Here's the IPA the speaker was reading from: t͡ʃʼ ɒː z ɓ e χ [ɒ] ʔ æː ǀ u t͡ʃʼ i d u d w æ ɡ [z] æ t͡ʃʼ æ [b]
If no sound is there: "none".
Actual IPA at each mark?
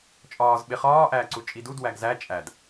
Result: ɒː, z, d

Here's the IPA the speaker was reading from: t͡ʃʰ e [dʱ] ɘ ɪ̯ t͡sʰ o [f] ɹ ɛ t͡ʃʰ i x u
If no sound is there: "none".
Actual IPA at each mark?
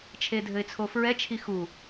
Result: dʱ, f

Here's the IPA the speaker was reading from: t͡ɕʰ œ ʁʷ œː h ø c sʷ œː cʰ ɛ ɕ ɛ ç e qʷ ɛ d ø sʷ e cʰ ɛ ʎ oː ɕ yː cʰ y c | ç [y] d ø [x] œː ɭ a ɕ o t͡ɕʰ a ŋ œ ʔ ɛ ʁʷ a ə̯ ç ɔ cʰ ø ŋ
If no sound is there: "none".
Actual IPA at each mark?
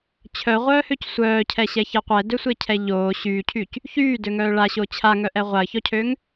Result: yː, ŋ

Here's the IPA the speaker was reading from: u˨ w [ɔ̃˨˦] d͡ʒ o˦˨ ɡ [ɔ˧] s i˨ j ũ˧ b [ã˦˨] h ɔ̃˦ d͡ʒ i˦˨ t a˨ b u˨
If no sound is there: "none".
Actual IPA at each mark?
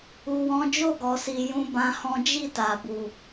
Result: ɔ̃˨˦, ɔ˨, ã˧

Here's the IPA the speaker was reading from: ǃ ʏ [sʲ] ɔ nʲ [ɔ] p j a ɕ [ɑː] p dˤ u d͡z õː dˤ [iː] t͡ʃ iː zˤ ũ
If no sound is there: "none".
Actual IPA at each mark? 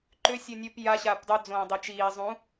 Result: sʲ, o, aː, i

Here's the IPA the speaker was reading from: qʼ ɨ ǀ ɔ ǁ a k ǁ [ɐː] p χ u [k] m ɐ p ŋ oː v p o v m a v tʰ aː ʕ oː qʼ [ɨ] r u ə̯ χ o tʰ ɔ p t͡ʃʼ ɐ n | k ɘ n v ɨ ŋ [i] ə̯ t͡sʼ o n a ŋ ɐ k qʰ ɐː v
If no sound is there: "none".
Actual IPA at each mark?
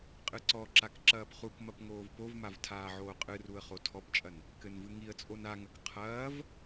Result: ɐː, k, ɨ, i

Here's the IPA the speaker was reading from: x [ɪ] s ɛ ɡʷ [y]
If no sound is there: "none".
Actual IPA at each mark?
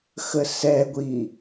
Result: ə, i

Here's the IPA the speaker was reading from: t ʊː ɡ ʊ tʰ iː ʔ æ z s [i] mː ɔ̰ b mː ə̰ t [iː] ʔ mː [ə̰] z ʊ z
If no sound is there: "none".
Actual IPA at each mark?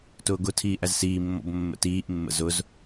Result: iː, iː, ə̰

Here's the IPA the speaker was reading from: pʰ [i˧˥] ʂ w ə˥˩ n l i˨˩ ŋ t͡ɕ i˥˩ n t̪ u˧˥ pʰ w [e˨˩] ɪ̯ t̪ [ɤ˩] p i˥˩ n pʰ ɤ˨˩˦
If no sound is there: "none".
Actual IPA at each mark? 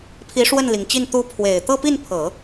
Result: i˧˥, e˨˩, ɤ˥˧

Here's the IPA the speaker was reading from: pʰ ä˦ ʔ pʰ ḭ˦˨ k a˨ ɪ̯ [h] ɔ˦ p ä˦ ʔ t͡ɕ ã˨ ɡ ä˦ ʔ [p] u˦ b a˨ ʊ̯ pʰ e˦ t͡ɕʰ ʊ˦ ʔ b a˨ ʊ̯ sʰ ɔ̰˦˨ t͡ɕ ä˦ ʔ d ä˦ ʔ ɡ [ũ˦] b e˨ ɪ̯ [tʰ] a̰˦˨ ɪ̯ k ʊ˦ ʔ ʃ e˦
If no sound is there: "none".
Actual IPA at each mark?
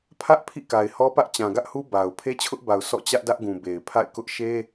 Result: h, h, ũ˨, pʰ

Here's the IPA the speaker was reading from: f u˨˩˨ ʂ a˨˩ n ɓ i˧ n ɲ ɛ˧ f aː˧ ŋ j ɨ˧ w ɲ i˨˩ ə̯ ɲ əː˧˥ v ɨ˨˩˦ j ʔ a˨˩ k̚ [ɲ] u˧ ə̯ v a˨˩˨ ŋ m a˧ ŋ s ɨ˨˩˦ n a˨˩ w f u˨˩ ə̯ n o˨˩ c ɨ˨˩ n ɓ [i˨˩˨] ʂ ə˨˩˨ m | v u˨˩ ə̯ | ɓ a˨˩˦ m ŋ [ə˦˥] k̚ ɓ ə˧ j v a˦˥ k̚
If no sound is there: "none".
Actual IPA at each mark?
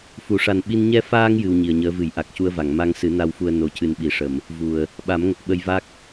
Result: c, i˨˩˨, ə˨˩

